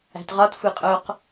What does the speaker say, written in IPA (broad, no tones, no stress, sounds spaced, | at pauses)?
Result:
æ̤ t ʁ ɒ t xʷ i qʼ o q